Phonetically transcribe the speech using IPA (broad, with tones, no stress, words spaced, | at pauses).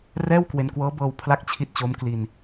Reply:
rɛː˥˩wkwe˧nkwɤː˦˥bɤː˧w pʰla˥˩k̚t͡ɕʰi˥˩t̚t͡ɕo˦˥m kli˧n